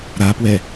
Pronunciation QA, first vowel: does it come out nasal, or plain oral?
oral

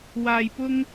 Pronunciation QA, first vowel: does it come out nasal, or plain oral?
oral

